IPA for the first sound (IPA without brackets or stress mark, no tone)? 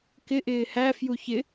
k